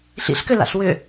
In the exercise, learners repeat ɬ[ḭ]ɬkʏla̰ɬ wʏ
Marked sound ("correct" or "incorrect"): correct